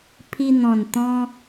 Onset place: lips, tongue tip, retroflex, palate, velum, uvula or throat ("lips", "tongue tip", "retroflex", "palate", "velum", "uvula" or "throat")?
lips